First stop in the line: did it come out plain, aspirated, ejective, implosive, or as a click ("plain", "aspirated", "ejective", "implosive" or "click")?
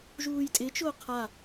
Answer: ejective